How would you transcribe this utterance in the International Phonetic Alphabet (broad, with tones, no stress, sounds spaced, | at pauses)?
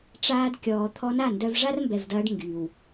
ʈ͡ʂ aː˧ d kʲ ɔː˨ t̪ʰ ɔ˧ n a˦˨ n d œ˧ v ʐ a˦ r m b ɛ˨ v d ɐː˧ ɖ ŋ ɡ yː˨ w